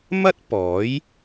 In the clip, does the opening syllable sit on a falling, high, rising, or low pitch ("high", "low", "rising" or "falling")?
high